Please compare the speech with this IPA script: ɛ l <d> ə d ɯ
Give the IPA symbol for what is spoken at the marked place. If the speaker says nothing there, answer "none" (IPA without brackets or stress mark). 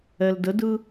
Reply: d